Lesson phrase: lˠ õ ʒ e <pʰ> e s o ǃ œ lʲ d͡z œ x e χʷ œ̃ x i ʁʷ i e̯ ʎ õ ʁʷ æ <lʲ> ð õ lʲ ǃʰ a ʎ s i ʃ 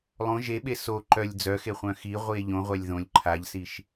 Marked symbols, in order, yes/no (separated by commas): no, yes